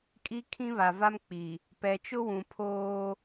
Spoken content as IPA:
kʼ i˦ kʰ ĩ˦ β a˨ v a˦ m k͡p i˨ | p ɛ˨ t͡ʃ ʊ˦ w ũ˨ pʰ oː˦

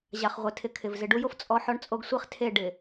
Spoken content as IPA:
ʑ a˨ χ ʁʷ ɪ˨ tʰ ɪ˦ kʰ ɪ˨ v z ɪ˨ ɖ u˦ j o˦ f t͡sʼ ɔ˦ ħ ɔ˦ ɳ t͡sʼ o˦ ɡ sʷ i˦ χ tʰ e˦˨ ɖ ɪ˨

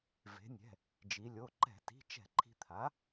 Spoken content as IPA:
v e̤˩˧ nʲ ɛ̤˩˧˩ | d͡ʒ i˩˧ lʲ o˩˧˩ ǃ ɛ̤˧˩˧ t i̤˩˧˩ t͡ʃ ɛ̤˧˩˧ ǃʰ i̤˧ t̪ʰ a˩˥

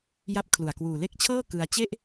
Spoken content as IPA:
j a˦˥ p̚ kʰ l u˨˩ a̯ k w uː˨˩ l e˥˩ k̚ t͡ɕʰ ɤː˥˩ k ɯ˧ a̯ t͡ɕ e˥˩ ʔ

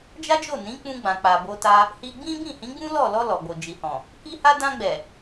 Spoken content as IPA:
d͡ʒ a˦ d͡ʒ o˦˨ n ĩ˨˦ k͡p ũ˧ ɡ͡b ã˨ k͡p a˨ b o˧ t a˦ | h i˧ ɡ͡b ĩ˦ b ĩ˦˨ h ĩ˨˦ ɡ͡b ũ˦ l ɔ˦˨ l ɔ˧ l ɔ˨ ɡ͡b o˨ d͡ʒ i˨ h ɔ̃˨ | k i˦ h a˦ d ã˧ ɡ͡b ɛ˨

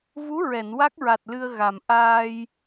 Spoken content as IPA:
v u˧˥ ɹ ɛ˨˩˨ n w a˦˥ k̚ ɹ a˨˩ t̚ l ɨ˧ ə̯ ɣ a˨˩ m ʔ aː˧ j

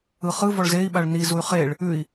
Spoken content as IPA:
ɯ χ ɯ v ɔ ɭ z e i̯ ɓ a ɭ n i z u y̯ χ e ɭ | ʉ i̯

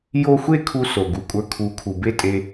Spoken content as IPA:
j o˦ xʷ e˦ kʰ u˧ s o˨ ɡ u˨ kʷʼ ə˞˧ kʰ u˨˦ kʰ u˨ b e˦ tʼ e˧

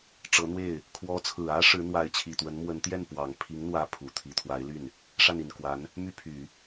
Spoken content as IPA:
ʈ͡ʂ ɤ˧˥ n̪ w e˥˩ ɪ̯ | kʰ w ɔ˧˥ t͡sʰ ɹ̩˨˩ ä˥ ʂ ɻ̩˧˥ n̪ w a˧˥ ɪ̯ t͡ɕʰ i˨˩ t̪ w ə˧˥ n m w ə˧˥ n t̪ j ɛ˥˩ n p w ɑ˨˩ ŋ pʰ i˧˥ ŋ n̪ w ä˧˥ pʰ u˨˩ t̪ʰ i˧˥ t̪ʰ w a˧˥ ɪ̯ l y˥˩ n | ʂ a˥˩ n i˨˩ n k w a˧˥ n | m y˥˩ pʰ y˨˩˦

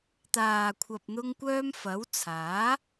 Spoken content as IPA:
t̪ aː˨ kʷʰ ɐ˨ p̚ n̪ ʊ˧ ŋ kʷ œː˧ m f ɐ˨˥ w t͡sʰ aː˨˥

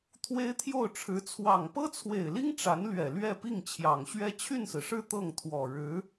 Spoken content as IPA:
t̪ʰ w e˥ ɪ̯ t̪ʰ j o˥˩ ʊ̯ ʈ͡ʂʰ ɻ̩˧˥ t͡sʰ w ɑ˨˩ ŋ p ɤ˥ t͡sʰ w e˨˩ ɪ̯ l i˥ ŋ ʈ͡ʂ a˧˥ n l ɥ ɛ˨˩ l ɥ ɛ˥˧ p i˥˩ ŋ t͡ɕʰ j ɑ˨˩ ŋ ɕ ɥ ɛ˥ t͡ɕʰ y˥˩ n s ɹ̩˩ ʂ ɻ̩˥˧ t̪ ɤ˥˩ ŋ t̪ʰ w ɔ˨˩ ɻ ɻ̩˧˥

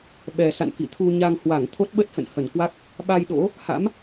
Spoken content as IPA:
ɓ ɛ˨˩ s a̰˧˨ n k ḭ˧˨ t̪ʰ u˧ ɲ a˧ ŋ h w a˧˩ ŋ t̪ʰ o˦˥ t̚ ɓ ə˦˥ t̚ h ə̰˧˨ n h ə˧˩ n k w a˦˥ k̚ | ɓ a˧ j ɗ o̰˧˥ | h a̰˧˥ m

